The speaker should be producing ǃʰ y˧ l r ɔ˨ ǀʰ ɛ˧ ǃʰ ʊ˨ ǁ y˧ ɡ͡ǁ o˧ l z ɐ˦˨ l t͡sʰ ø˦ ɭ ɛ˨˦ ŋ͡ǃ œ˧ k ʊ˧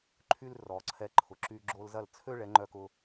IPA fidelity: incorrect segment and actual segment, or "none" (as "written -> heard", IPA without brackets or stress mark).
none